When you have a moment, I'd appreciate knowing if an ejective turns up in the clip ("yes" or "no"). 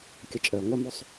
yes